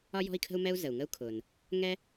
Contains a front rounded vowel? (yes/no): no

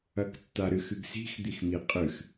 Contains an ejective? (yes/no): yes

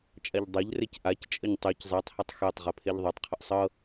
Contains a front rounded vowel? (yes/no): yes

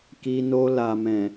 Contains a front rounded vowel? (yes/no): no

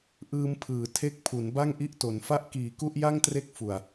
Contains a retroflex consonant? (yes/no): no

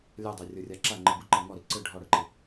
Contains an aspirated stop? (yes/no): no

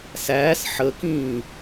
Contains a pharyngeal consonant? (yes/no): yes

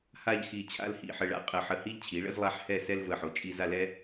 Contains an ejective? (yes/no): yes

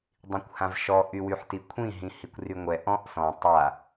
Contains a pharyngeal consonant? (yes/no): yes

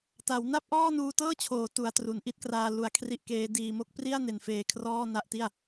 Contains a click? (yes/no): no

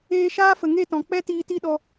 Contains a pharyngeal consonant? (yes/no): no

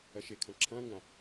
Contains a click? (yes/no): yes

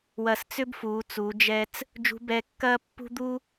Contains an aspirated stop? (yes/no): no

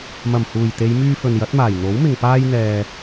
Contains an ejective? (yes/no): no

